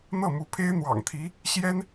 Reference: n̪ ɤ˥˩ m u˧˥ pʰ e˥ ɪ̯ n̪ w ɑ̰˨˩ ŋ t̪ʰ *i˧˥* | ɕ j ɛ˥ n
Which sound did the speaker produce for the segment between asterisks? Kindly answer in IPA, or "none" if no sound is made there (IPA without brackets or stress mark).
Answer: i˧˥